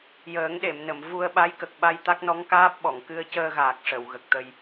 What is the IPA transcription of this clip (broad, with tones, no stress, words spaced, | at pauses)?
jəː˨˩˦ŋɗe˨˩˨mnə˨˩˨m vu˧ə̯ɓa˧˥jkə˨˩k̚ ɓa˧j t̪a˦˥k̚nɔ˧˥ŋkaː˦˥p̚ɓɔ˨˩˨ŋ kɨ˧ə̯cəː˧ɣaː˨˩k̚ ʂə˨˩˨w ɣə˨˩k̚t̪ə˧j